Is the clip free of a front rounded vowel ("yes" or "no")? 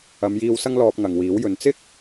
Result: yes